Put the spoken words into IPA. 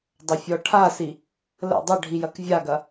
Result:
dˤ ɐ fʲ ɔ ʈʰ a s i | l ə̰ dˤ ə ɖʱ i j ɐ k vʲ a ɡ ɐ

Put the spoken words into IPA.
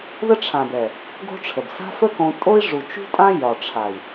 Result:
ð ə˦ ʈ͡ʂʰ ã˨ b ɛ˨ | ɡ o̤˦ ʈ͡ʂʰ ə˨ b s a̤˦ f ə˦ k õ˧ tʼ o˦ i̯ ʐ u˨ t͡ʃ ṳ˦ tʼ ã˦ j ɒ˨ ʈ͡ʂʰ a˨ i̯

